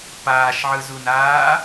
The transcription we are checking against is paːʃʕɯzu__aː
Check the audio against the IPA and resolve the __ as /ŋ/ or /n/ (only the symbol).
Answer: n